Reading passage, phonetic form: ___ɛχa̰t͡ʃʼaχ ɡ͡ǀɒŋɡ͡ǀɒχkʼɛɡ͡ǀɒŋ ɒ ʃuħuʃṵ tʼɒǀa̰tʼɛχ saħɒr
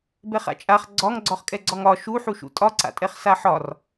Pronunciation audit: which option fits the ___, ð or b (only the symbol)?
b